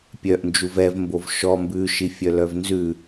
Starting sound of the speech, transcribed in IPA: pʲ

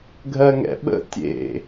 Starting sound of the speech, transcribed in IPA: ɡʱ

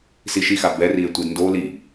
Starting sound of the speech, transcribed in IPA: s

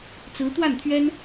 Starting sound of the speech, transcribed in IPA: t͡s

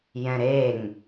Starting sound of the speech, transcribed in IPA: j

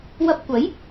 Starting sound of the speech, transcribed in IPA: w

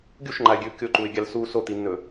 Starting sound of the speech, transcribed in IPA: ɡʲ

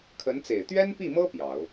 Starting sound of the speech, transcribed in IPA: kʰ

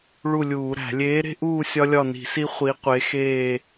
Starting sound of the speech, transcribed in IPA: ɭ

